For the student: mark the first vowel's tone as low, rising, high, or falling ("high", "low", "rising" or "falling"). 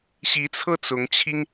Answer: rising